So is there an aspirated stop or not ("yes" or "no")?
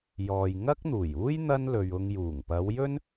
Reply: no